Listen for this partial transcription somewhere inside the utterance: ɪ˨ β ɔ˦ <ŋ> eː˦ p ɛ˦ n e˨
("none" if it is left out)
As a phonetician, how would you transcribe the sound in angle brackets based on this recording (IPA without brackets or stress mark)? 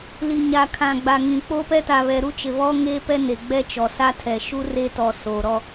ŋ